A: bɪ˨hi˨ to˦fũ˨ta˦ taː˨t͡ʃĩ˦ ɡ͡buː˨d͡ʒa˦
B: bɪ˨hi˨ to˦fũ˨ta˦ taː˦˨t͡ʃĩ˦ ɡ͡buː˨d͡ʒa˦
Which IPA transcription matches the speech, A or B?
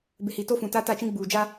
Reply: B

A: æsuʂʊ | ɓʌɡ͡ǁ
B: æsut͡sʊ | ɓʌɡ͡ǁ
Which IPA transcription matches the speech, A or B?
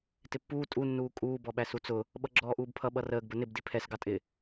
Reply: B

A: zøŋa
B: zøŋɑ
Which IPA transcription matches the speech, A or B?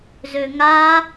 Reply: A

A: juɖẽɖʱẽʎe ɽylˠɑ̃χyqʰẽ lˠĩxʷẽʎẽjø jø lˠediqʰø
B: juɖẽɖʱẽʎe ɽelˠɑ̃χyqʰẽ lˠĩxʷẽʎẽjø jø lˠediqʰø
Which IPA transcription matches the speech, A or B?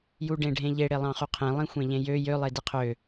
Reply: B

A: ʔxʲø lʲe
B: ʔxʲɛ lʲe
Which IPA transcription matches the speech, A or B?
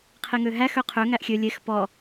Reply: A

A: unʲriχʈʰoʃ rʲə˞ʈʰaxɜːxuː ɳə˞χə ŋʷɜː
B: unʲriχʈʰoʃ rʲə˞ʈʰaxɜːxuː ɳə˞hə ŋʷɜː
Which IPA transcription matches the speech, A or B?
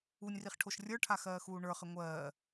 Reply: A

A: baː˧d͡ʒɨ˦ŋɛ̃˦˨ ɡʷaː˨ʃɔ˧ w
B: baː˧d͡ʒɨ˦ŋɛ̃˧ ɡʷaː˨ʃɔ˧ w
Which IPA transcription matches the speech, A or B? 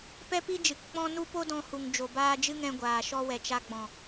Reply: B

